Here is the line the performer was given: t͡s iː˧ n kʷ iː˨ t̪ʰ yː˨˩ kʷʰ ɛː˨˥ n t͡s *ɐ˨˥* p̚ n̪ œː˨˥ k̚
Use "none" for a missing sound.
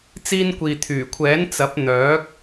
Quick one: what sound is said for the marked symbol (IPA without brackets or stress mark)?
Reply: ɐ˨˥